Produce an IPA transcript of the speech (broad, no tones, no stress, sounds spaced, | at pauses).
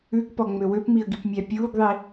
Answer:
ʉ ɡ p ɔ ŋ͡m ø w ø p m i ə̯ ɡ i p mʲ æ pʲ uː ɡ ðˤ i